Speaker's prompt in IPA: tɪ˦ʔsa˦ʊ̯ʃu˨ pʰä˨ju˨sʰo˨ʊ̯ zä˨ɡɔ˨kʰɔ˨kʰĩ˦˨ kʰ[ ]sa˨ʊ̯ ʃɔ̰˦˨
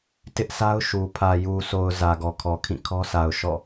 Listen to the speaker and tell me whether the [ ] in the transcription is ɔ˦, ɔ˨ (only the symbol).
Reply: ɔ˦